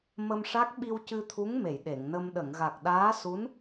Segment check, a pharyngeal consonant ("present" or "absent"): absent